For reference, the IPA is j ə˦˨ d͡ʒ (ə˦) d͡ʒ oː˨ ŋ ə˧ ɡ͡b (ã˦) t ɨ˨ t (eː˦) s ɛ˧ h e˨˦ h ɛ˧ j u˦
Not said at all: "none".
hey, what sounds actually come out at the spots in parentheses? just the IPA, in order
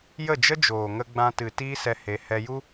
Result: ə˦, ã˧, iː˦

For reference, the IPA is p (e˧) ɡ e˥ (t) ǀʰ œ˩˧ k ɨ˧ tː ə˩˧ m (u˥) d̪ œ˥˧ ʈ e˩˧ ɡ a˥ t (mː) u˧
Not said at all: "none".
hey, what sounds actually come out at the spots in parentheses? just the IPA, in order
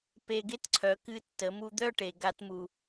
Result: e˧, t, u˧, m

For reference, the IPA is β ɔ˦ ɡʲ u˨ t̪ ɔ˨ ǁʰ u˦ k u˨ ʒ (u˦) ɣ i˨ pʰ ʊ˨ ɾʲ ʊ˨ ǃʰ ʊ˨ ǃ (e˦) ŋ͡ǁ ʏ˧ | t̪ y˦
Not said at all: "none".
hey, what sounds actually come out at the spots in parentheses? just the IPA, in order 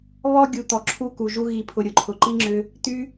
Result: u˦, i˦

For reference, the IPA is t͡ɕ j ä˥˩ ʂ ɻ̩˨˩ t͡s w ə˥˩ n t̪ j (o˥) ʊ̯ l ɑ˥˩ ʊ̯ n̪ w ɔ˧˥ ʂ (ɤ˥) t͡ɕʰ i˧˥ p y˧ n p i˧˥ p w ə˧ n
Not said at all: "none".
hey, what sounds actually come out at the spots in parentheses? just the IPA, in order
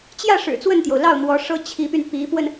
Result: o˩, ɤ˥

